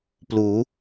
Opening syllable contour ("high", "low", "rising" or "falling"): rising